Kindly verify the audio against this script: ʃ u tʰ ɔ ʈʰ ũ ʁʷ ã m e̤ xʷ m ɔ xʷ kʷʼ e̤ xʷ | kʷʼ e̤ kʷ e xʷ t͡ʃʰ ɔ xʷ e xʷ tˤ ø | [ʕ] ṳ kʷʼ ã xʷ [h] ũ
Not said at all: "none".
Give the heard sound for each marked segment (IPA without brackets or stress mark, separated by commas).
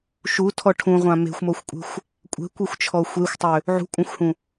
ʕ, h